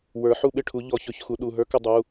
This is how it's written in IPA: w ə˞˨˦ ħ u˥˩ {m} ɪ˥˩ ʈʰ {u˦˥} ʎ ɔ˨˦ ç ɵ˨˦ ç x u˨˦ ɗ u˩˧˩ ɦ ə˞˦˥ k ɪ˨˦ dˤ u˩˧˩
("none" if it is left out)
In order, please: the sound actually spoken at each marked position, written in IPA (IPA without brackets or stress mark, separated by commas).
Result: ɓ, u˨˦